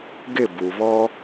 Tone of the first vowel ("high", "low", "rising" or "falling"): falling